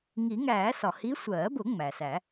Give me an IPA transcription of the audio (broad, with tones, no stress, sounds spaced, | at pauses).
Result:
ŋ i˨˩˦ ŋ æː˨˩˦ s ɒ˩ h i˧˥ sʷ ɜː˨˩˦ b ʊ˨˩˦ ŋ͡m æ˩ s æ˨˩˦